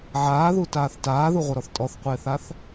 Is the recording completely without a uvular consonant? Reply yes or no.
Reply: no